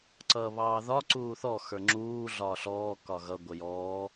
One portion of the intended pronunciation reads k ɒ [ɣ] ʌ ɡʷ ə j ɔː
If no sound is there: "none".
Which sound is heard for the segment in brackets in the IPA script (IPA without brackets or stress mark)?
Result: ɣ